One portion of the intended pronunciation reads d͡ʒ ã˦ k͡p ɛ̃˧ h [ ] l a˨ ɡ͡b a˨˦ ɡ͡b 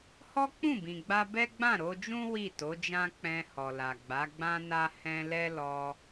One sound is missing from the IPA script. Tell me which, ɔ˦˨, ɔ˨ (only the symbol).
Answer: ɔ˨